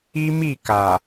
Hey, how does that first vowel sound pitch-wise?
high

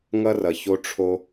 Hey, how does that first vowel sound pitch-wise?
high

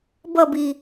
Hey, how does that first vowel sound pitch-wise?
falling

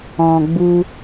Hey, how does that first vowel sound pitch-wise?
low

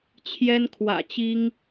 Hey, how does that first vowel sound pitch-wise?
high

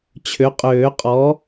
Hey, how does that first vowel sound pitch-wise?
rising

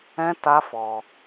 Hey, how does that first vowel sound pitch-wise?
high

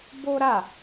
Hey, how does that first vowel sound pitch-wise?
high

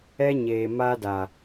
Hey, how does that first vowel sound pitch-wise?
high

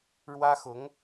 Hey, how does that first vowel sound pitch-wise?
high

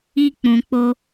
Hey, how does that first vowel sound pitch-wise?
high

